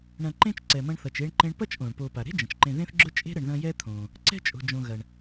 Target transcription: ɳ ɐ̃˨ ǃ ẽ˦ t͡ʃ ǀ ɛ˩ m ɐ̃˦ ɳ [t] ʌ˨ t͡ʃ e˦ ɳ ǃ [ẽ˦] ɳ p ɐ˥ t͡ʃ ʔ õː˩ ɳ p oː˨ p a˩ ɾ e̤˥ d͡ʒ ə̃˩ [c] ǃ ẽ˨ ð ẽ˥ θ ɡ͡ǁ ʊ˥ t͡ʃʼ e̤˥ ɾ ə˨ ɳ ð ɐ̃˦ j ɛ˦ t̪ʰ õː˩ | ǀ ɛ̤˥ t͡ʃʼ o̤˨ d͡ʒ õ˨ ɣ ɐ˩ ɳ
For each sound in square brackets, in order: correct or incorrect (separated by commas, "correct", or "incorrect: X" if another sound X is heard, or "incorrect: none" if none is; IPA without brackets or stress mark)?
incorrect: θ, correct, incorrect: t͡ʃ